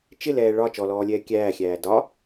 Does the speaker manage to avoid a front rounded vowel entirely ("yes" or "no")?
yes